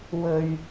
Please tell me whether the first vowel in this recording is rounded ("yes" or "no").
yes